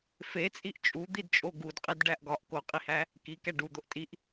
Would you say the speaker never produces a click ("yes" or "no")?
yes